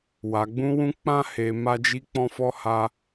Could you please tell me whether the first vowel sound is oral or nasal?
oral